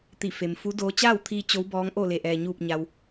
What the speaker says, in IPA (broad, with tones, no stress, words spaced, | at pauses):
t̪i˧˩fe˩mfu˧˥doː˧˥ t͡ɕaː˥˨wt̪ʰiː˧ t͡ɕo˧˥wbɔː˧˥ŋʔo˥˨ le˧˩ʔɛː˩ɲuː˧˩p̚ ɲa˩w